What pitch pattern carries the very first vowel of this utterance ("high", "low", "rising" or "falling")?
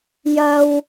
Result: high